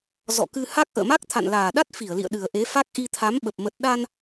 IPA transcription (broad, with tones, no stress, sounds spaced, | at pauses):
z ɔ̰˧˨ k ɨ˧ h a˦˥ k̚ ʔ ə̰ː˧˨ m a˦˥ k̚ t̪ʰ a̰˧˨ n l aː˨˩ ɗ a˦˥ t̚ f i˧˩ ə̯ l ḭ˧˨ ə̯ ɗ ɨ˨˩ ə̯ ʔ e˨˦ f a˦˥ k̚ ʔ i˧ t̪ʰ a˨˦ m ɓ ə˨˩ p̚ m ə˨˩ t̚ ɗ a˧ n